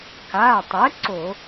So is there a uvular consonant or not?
no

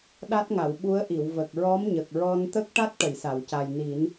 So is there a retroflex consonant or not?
yes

